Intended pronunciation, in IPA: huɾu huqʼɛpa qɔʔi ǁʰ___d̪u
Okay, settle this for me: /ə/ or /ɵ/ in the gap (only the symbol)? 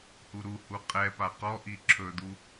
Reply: ɵ